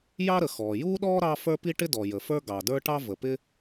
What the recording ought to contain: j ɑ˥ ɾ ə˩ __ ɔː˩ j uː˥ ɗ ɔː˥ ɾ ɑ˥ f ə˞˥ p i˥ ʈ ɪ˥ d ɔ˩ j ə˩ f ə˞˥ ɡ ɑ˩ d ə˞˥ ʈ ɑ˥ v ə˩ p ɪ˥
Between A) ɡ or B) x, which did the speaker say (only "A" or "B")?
B